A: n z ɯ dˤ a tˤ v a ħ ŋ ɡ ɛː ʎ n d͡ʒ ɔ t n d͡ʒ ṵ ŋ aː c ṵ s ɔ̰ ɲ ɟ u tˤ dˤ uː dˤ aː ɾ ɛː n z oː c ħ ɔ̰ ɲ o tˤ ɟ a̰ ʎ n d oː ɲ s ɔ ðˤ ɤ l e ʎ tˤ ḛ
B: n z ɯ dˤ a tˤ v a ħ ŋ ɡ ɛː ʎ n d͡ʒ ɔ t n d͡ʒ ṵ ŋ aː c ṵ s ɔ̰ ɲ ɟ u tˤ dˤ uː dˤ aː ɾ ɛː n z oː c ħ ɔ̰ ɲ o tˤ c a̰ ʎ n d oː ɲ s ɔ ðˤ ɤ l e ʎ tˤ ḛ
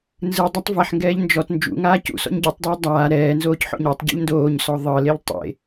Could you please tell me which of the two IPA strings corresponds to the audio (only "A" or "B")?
A